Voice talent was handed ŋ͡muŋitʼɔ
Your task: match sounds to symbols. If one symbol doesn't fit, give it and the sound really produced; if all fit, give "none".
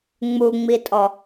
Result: ŋ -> ŋ͡m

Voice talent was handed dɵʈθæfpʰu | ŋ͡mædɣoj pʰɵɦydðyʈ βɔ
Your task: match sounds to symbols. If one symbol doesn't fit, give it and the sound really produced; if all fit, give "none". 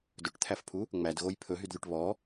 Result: θ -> t̪ʰ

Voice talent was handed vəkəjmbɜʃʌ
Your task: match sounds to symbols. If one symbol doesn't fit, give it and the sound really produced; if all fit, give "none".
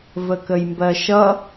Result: none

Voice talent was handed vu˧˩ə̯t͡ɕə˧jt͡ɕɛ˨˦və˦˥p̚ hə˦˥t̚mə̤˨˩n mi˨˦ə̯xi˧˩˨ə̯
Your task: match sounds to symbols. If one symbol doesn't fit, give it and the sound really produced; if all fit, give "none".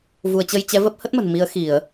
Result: none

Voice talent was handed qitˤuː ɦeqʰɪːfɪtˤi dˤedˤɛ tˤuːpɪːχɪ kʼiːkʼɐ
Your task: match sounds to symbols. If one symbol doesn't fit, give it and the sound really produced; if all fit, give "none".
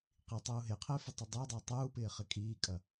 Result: none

